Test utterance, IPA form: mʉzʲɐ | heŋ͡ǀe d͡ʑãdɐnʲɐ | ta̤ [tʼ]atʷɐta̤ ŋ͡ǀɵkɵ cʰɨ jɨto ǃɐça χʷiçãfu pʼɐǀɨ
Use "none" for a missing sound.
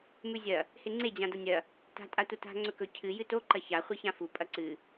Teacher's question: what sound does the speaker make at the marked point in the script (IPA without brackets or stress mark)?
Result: tʼ